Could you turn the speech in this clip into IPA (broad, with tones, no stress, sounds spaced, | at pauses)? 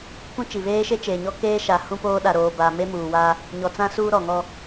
k ũ˦ t͡ʃ i˨ β eː˦ ʃ e˦ t͡ʃ eː˨ ɲ ɔ˦ k eː˦ ʃ a˨ h ũ˦ p oː˦ ɗ a˨ ɾ oː˨ b a˨ m e˦ m uː˨ w aː˦ | ɲ ɔ˨ t͡s ã˦ s uː˦ ɾ ɔ˨ ŋ ɔ˦